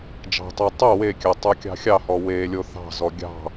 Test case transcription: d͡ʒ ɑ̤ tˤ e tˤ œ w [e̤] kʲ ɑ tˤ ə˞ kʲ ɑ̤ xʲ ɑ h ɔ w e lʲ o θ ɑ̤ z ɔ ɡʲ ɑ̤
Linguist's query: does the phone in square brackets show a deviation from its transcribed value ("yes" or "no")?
yes